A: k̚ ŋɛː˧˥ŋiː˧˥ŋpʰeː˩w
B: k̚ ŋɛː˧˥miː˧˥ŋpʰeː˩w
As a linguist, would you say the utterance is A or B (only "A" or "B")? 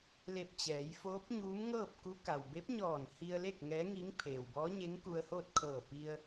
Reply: A